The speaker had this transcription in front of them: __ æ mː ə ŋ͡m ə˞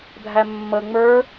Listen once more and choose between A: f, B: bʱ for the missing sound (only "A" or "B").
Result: B